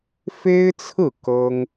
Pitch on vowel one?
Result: high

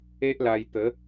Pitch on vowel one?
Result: high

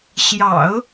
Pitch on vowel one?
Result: low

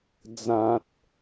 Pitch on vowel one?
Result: low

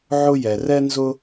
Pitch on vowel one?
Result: high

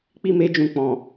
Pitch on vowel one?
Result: high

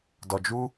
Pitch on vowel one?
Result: low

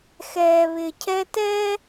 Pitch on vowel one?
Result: low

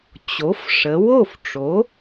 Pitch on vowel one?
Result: rising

